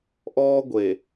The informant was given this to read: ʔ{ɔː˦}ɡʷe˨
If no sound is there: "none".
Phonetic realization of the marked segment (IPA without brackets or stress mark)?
ɔː˦